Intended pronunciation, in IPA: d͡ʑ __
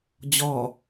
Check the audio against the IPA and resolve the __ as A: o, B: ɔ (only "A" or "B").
B